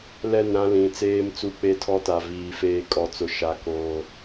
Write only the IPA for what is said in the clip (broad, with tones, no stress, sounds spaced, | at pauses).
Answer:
l ɛ˦˨ n ɾ ã˦ l ĩ˨ t͡s eː˦ m t͡s u˦ k͡p e˦ tʰ ɔ˦ t a˨ v iː˨ f eː˦ kʼ ɔ˦ t͡s ʊ˦ ʃ a˦ k oː˦